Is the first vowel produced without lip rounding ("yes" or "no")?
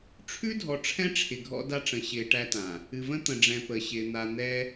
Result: no